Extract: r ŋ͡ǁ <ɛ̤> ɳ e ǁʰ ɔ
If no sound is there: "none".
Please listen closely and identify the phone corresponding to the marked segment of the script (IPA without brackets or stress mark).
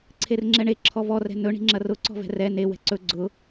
ɛ